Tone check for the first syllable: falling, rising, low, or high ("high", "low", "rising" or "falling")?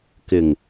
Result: low